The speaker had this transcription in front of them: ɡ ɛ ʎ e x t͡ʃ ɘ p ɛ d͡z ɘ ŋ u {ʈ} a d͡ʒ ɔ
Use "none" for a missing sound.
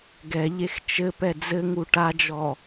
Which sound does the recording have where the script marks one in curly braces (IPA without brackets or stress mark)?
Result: ʈ